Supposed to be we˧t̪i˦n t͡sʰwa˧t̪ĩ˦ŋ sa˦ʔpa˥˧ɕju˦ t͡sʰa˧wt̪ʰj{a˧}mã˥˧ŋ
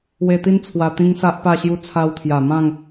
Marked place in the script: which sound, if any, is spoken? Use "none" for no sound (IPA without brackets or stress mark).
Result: a˨˩